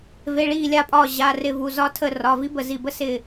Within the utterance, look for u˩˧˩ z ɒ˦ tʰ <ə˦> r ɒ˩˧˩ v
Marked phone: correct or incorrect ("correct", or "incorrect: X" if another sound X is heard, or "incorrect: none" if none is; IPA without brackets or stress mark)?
incorrect: ə˧˩